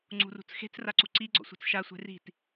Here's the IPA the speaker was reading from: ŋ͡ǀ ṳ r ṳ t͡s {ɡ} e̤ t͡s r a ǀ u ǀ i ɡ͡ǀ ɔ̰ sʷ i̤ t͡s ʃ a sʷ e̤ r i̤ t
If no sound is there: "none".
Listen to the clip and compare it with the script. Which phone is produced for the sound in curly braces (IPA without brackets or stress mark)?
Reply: x